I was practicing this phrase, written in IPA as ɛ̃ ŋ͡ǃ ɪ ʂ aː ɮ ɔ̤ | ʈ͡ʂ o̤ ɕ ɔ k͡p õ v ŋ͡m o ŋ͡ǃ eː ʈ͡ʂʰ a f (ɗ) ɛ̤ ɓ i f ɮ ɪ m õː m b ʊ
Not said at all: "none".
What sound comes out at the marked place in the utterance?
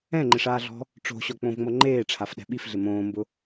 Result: ɗ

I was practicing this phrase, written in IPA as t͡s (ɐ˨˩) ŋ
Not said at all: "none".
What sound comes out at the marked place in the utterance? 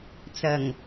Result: ɐ˨˩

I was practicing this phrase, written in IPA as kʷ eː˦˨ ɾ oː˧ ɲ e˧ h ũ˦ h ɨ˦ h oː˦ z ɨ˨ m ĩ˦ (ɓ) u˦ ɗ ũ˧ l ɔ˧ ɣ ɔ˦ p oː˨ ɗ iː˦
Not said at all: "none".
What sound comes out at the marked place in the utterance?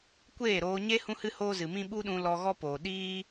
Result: ɓ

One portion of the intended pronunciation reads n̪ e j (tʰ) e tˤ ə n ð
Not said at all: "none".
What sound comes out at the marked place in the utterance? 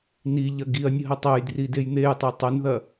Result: tˤ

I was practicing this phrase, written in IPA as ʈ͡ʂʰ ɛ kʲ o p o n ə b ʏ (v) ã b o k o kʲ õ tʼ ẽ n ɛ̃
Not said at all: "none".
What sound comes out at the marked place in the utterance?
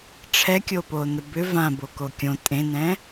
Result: v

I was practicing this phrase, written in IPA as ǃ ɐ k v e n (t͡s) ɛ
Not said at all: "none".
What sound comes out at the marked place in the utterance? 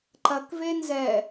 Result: z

